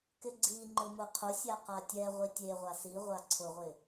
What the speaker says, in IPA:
k ɪ ɡ͡ǀ i ŋ͡ǃ ʊ m ʊ qʰ ʊ sʲ a q a tʲ ɛ ʁʷ i tʲ e ʁʷ a s i ʁʷ a ǀʰ ʊ ʁʷ ɪ

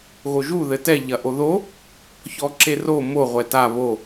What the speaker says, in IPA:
ɣ o ʒ u ð ɘ t ɛ ʎ ɐ ʔ o ð o | ç ɔ ǁ e r o m o ʁʷ ɛ t a β o

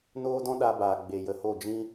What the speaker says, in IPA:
n oː˦ d ɔ̃˦ ɗ a˧ b aː˨ ɡ͡b e˨ j ə˨ h o˦˨ d͡ʒ ĩ˦

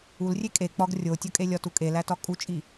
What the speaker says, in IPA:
u l rʲ e kʼ e k͡p ɒ ɡ rʲ o tʲ ɒ kʼ e lʲ ɒ t u kʼ e l æ t ɒ kʼ u t͡ʃʼ i

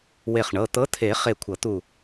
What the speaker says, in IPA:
w e˧˩ χ ɳ ɤ˩˧˩ t̪ ɤ˨˥ t̪ʰ e˨˩˦ χ e˧˩ kʷʰ ɤ˨˩˦ t̪ u˧˩

